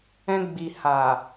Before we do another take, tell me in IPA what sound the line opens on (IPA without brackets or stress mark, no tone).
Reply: ɛ̃